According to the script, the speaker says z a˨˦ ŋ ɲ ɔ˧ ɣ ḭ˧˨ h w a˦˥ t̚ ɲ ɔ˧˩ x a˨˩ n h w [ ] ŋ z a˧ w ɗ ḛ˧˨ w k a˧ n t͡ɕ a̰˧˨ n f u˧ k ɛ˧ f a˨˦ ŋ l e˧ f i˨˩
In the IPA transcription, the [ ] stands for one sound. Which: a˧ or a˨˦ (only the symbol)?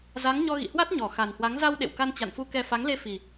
a˨˦